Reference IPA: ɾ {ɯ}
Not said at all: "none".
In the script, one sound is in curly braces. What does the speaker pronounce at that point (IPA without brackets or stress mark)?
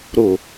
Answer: ʊ